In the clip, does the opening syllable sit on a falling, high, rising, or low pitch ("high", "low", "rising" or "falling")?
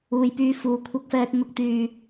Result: low